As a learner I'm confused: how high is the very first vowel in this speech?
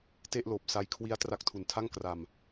mid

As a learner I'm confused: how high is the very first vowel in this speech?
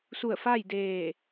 high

